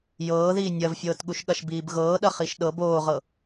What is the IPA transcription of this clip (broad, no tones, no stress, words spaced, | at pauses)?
jɤː ðiːnʲɐvfʲɤːtɠuʃ ɠɐʃbiːbɣɤː ɗɐχiʃɗɤb oːʁɤ